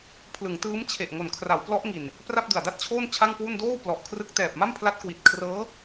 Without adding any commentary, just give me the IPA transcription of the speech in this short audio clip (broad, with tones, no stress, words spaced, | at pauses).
pʰlɯ˩˦ŋtɯː˦˥m t͡ɕʰe˨˩ʔ ŋo˨˩nkʰra˩˦wplɔ˦˥ʔ ŋi˨˩n | pra˥˩p̚dɯ˨˩a̯da˥˩t̚t͡ɕʰoː˥˩n t͡ɕʰa˥˩ŋkwu˥˩n doː˥˩w plɔ˨˩ʔkʰrɯ˦˥k̚ tɛː˨˩p̚ma˥˩mpʰla˦˥t̚kwi˨˩t̚ kʰrɤː˦˥